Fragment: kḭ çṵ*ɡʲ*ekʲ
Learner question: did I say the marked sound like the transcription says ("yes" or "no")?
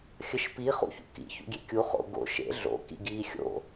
yes